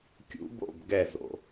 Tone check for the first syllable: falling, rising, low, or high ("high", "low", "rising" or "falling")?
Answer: rising